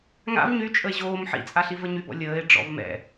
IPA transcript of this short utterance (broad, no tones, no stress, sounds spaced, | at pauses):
ŋ a̰ v ɲ y t͡ʃʼ ə e̯ ʑ oː m ħ ḭ t͡sʼ a ɬ i v ə ɲ y b ɔ̰ lʲ əː e̯ ɖ͡ʐ ɔ̰ v m ɛ̰